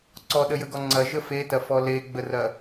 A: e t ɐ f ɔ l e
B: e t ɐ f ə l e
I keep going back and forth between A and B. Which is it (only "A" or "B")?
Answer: A